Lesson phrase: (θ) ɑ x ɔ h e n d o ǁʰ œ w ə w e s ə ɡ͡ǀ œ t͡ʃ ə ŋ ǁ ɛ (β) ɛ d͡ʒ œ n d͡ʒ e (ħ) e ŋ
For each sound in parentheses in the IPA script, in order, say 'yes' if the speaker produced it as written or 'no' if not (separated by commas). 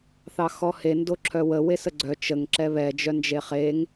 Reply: yes, yes, no